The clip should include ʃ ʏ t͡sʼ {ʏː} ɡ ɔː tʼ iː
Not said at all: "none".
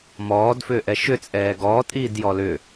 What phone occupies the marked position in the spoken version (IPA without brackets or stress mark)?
ɛː